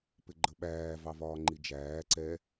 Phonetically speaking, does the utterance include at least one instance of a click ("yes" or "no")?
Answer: yes